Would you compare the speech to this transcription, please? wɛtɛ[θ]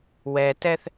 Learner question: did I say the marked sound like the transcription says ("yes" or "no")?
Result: yes